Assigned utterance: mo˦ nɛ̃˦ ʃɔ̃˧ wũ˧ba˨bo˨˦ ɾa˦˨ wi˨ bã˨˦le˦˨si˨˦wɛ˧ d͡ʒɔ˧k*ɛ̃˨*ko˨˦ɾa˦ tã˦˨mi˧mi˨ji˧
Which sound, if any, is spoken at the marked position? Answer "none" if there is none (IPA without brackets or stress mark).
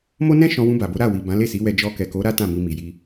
ɛ˨